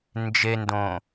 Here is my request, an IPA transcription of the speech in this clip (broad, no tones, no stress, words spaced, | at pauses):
nd͡ʒendõ